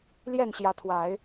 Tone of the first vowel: falling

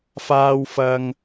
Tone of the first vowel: high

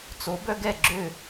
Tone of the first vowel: rising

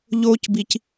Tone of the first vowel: high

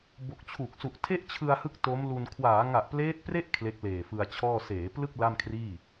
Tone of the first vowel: low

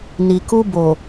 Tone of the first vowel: low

